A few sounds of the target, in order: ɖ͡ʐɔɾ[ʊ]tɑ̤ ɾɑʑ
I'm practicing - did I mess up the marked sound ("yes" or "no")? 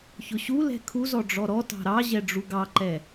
yes